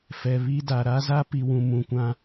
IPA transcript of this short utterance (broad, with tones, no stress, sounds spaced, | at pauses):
f ɛ˨ β i˦ d a˨ ɾ a˦ z a˦ p i˨ w ũ˨ m ũ˨ kʷ ã˦